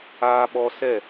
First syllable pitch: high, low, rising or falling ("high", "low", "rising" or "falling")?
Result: high